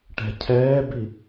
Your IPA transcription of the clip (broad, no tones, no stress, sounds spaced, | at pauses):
ʈ ɛ̤ cʰ ɛː b i